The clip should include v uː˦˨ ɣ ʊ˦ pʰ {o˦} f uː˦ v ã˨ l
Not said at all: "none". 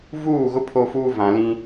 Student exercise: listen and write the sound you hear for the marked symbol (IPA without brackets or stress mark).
o˦